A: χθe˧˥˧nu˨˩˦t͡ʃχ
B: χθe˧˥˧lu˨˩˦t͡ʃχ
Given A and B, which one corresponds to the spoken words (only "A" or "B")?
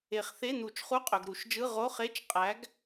A